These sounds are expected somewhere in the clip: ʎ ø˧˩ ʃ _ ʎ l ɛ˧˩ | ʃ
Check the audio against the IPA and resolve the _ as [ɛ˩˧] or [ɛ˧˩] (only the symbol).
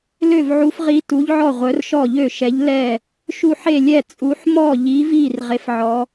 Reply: ɛ˩˧